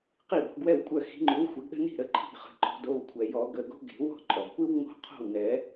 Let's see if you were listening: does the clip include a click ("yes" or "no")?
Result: yes